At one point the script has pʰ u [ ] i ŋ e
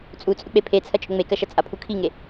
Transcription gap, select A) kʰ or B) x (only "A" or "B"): A